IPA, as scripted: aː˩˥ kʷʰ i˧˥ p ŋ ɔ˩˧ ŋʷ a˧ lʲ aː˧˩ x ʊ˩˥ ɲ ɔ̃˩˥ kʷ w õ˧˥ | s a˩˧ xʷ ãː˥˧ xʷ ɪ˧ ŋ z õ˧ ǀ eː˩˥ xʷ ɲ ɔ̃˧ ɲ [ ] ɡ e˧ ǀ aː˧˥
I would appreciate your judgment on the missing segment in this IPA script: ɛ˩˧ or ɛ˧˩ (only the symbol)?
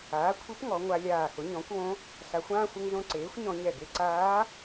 ɛ˧˩